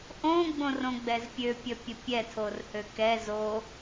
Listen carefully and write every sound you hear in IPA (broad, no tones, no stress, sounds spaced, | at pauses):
ʔ õ ɡ͡b õ r õ ɡ͡b ɛ z pʲ ø pʲ ə pʲ ə pʲ ɛ tʰ o r h ø k ɛ z o